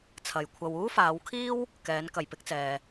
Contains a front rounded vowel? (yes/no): no